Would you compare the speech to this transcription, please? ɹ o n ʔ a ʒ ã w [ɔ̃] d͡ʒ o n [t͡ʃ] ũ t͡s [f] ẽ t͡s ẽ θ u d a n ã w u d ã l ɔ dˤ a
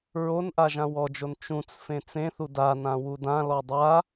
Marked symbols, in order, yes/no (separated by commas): no, yes, yes